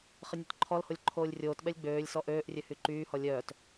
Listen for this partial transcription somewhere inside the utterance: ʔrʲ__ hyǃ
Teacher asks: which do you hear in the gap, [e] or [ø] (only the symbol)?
ø